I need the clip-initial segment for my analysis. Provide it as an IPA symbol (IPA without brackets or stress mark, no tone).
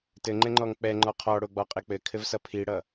t